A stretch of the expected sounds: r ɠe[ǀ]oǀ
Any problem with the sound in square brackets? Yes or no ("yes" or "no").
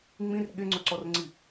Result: yes